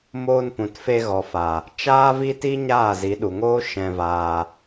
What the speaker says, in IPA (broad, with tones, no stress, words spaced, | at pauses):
moː˧npũ˨tfe˧ ɣɔ˨fa˨ | t͡ʃaː˦vi˦ti˦ ɲaː˦˨zi˨˦ɗu˨ŋoː˦ ʃɛ̃˧vaː˧